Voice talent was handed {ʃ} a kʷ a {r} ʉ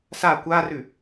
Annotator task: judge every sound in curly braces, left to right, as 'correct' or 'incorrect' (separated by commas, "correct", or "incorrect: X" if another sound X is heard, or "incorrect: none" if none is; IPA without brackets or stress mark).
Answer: incorrect: s, correct